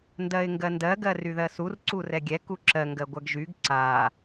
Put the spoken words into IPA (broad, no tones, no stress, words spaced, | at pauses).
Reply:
ndɜɪ̯ŋɡɜndɜ ɡɜryðɜsur ǀurɛɡʲɛ kuǁɜ ŋɡɜɡʷɜɡʒyɡ ǀa